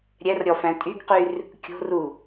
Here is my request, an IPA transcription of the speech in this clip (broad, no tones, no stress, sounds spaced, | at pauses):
ɾʲ ɛ r ɾʲ ɔ f æ̃ tʼ y ɡ q y r | kʲ o̤ r u